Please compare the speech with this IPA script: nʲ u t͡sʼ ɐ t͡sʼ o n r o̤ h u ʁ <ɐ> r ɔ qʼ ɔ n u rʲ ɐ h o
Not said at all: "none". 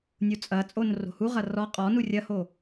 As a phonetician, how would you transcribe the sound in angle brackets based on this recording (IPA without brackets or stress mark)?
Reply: ɐ